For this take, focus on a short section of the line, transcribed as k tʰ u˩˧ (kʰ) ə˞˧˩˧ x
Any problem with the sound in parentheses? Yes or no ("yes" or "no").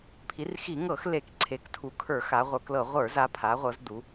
no